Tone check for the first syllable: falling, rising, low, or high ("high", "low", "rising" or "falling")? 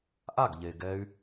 falling